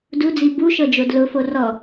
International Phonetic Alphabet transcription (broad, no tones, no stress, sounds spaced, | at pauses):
d u d͡z i b u ʃ ɤ d͡ʒ o d l ʊ f o r ɔ